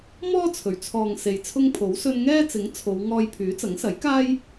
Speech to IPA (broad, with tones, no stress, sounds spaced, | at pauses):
m ɔː˥ t͡sʰ ɵ˨˩ ɥ t͡sʰ ɔː˨ ŋ s e˨ j t͡sʰ ʊ˥ ŋ pʰ o˨˥ w s ɵ˥ n ŋ ɛː˥ t͡s ɪ˨˥ ŋ t͡sʰ o˨˧ w ŋ ɔː˧ j pʰ yː˨˥ t͡s ɐ˨˥ ŋ s ɐ˨˥ j k aː˥ j